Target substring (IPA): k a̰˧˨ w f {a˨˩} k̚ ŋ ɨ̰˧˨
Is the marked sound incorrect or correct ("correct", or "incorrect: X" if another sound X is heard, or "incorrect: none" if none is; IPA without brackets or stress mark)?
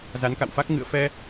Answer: incorrect: a˦˥